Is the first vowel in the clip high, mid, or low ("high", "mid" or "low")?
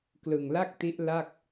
high